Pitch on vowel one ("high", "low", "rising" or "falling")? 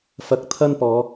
rising